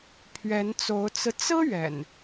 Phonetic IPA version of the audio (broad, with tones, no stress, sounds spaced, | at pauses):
pʰ ɥ ɛ˨˦ n t͡s o˨˦ ʊ̯ t͡s ɹ̩˧ t͡s ɹ̩˦ ɥ ɛ̰˨˩ n